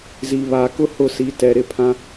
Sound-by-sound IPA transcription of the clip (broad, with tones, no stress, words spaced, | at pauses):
zi˨βaː˨kʊ˦hʊ˦˨ si˨ tɛ˨ɾɪ˦˨ pʰã˦